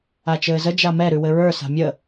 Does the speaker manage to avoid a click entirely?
yes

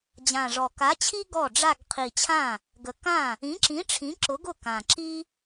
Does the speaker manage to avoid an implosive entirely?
yes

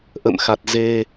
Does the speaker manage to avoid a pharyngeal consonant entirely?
yes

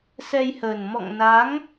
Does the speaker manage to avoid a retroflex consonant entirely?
yes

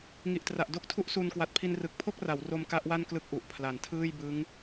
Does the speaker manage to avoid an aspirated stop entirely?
no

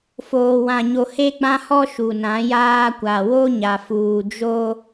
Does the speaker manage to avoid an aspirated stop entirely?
yes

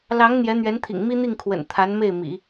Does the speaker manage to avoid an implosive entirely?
yes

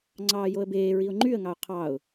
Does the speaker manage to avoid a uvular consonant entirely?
no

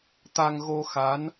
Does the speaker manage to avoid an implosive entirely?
yes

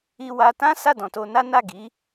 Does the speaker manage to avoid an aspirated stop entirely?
yes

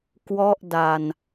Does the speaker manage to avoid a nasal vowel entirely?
yes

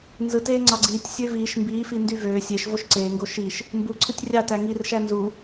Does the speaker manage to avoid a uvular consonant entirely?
yes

